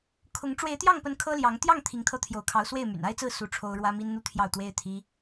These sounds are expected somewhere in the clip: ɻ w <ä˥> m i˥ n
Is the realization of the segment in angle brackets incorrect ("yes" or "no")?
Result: no